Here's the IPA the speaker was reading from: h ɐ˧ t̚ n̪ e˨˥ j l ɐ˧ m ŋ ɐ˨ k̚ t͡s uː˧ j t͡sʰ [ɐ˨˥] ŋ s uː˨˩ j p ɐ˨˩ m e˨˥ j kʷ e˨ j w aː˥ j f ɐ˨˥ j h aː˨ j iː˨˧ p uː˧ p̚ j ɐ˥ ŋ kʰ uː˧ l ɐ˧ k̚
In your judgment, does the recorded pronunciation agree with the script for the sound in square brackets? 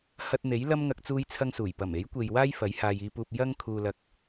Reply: no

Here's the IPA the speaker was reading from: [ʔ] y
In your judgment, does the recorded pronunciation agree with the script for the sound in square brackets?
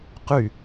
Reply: no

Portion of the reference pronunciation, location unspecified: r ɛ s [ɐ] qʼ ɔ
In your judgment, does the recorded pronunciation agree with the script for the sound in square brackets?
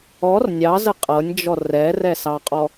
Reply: no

